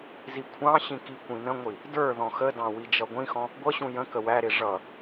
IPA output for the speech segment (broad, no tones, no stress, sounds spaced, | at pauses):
z i kʷʰ ɑ̃ ɕ ĩ k i kʷ ĩ n ə̃ ŋʷ i | d ə˞ ð ɔ̃ x ə d ɑ̃ w i d͡ʒ ʌ ɡʷ ĩ x ɔ̃ | ɡʷ ʌ ɕ ũ j ə̃ k ə w æ ɾ ɪ ʐ ʌ